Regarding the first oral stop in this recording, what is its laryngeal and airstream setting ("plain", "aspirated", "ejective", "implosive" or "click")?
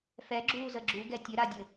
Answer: click